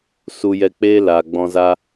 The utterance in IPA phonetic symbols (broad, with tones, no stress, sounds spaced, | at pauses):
s u˧ j ɛ˧ k͡p eː˦ l aː˨ ɡ͡b ɔ̃˧ z a˦